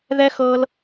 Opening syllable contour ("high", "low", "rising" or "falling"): high